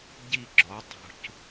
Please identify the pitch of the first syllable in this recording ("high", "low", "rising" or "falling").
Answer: falling